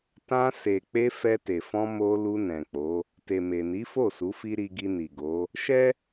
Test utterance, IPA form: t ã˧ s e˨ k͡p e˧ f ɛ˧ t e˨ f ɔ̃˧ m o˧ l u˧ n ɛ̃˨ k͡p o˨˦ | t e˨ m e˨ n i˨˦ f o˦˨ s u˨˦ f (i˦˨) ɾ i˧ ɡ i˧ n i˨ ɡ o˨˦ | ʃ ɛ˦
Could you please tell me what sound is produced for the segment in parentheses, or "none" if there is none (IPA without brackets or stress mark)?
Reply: i˦